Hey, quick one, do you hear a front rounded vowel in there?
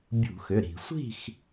yes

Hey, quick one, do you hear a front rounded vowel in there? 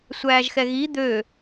yes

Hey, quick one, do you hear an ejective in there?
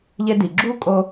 yes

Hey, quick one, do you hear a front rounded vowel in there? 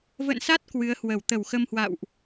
no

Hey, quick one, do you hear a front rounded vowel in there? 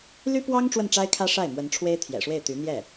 yes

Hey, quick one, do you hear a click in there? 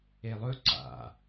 yes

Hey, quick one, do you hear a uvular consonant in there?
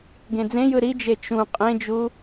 yes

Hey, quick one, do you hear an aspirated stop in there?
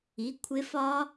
yes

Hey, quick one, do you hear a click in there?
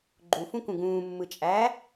yes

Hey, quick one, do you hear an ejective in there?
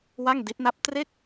no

